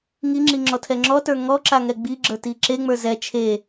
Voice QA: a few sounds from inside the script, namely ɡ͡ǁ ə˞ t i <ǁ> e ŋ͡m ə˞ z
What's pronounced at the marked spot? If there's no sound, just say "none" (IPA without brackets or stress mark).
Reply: ǁ